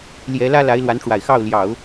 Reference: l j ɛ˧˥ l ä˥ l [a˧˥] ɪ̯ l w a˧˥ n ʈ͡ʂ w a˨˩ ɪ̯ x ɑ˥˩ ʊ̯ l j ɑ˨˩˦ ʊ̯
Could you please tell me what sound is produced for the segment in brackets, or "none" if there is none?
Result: a˧˥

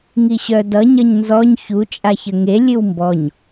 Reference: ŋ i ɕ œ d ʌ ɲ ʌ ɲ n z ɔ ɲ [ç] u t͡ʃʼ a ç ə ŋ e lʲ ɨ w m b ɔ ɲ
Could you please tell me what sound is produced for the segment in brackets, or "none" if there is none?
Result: ç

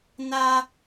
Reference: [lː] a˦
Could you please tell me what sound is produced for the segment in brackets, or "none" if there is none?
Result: n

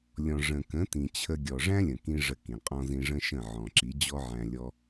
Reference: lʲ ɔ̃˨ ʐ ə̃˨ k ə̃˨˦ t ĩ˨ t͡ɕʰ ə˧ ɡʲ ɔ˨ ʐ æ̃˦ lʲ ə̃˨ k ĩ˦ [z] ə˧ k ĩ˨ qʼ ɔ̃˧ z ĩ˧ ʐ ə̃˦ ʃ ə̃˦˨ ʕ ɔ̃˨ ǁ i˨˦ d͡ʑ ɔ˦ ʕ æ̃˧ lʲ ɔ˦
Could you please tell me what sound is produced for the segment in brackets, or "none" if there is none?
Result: ʐ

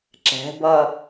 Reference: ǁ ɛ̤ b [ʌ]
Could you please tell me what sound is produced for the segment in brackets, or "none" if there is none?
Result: ʌ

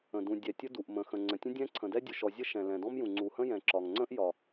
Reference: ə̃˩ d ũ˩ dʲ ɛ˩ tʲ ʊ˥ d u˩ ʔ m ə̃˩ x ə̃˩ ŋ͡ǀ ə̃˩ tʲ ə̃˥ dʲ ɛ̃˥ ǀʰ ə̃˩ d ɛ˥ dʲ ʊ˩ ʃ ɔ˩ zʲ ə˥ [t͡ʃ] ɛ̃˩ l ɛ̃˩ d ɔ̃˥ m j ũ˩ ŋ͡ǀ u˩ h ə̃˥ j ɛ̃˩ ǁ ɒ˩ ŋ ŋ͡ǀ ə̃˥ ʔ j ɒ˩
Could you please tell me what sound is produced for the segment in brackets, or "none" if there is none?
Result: ʃ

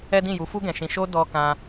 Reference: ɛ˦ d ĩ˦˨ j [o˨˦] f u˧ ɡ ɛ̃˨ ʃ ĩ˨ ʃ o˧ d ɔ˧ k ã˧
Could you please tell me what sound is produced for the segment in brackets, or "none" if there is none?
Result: u˨˦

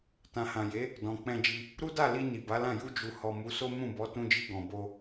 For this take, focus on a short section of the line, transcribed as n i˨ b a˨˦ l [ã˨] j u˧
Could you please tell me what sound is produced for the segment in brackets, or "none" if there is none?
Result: ã˦˨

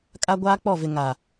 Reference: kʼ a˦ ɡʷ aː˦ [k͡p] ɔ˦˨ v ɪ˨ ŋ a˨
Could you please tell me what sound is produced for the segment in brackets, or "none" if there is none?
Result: k͡p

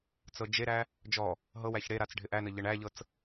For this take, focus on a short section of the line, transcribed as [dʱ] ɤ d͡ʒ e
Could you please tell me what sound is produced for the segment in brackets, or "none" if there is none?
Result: t͡s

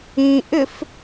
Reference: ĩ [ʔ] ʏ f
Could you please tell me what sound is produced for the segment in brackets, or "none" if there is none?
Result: ʔ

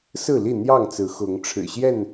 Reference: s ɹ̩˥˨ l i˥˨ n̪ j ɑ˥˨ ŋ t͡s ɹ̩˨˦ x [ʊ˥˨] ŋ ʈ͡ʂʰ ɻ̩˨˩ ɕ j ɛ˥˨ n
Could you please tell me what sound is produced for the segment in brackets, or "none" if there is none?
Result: ʊ˨˦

